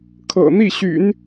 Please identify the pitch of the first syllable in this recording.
low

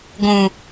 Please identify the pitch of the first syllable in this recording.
low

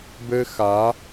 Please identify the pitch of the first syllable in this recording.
high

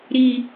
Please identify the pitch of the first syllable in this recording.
high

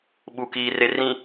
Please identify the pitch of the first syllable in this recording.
low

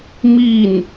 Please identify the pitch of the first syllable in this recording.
falling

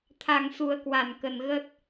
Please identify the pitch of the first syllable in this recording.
low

